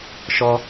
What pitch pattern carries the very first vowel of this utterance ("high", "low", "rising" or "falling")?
high